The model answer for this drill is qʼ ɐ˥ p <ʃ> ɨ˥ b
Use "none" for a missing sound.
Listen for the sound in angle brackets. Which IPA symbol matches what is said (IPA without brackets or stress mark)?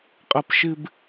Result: ʃ